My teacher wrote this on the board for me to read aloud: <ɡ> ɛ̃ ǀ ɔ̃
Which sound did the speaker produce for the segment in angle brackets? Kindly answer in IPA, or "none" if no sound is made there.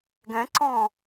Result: ɡ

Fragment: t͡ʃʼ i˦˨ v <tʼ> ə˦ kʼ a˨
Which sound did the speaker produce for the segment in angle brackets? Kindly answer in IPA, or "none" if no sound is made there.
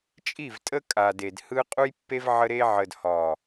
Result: tʼ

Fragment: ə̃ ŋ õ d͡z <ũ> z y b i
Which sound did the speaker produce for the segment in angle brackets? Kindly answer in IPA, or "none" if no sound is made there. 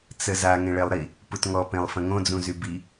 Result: ũ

